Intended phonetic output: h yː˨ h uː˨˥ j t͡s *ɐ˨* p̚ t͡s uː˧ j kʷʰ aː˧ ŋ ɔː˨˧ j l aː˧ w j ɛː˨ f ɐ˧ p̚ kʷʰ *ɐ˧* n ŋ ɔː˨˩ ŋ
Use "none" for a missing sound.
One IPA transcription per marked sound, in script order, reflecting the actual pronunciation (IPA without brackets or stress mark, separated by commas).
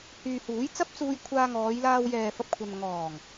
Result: ɐ˥, ɐ˧